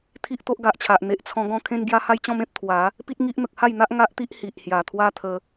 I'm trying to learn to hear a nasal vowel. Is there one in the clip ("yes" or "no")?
yes